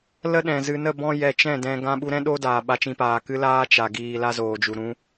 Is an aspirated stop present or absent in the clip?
absent